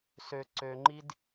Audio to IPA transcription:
s ø ǀ ø ŋ͡ǃ i d

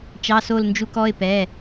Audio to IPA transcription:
t͡ʃ ɑ˩˧˩ s o˧˩ l n d͡ʒ u˧˩ k ɔ˩˧˩ ɪ̯ p ɛ˩˧˩

